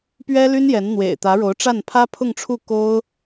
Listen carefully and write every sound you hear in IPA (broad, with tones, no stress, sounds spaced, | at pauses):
p ɥ ɛ˥ l y˥ n j ɛ˧˥ n n̪ w ḛ˨˩ ɪ̯ t̪ ä˧˥ ɻ o˧˥ ʊ̯ ʈ͡ʂ a˥˩ n pʰ ä˥ pʰ ʊ˥˧ ŋ ʈ͡ʂʰ u˥˩ k o˥ ʊ̯